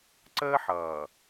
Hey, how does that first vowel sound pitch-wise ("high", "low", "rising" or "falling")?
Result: high